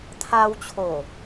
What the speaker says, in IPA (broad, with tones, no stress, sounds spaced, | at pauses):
t̪ʰ a˧ w t͡ɕʰ o˨˩